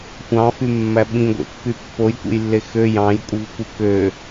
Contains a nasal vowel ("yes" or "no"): yes